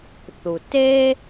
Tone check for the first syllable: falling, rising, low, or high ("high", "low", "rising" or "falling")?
low